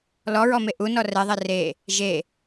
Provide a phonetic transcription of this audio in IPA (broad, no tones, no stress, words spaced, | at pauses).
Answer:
lɔɹɔme ʔunɔ rɛðˤɛ re | ʒe